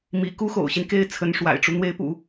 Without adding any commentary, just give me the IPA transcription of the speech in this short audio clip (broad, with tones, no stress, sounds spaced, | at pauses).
m ḭ˨˩ k u˥ x o̰˨˩ ʊ̯ ɕ i˦ n k e˥ ɪ̯ t͡sʰ ə˧˥ n ʂ w a̰˨˩ ɪ̯ ʈ͡ʂ u˦ n̪ w e˧˥ ɪ̯ p ṵ˨˩˦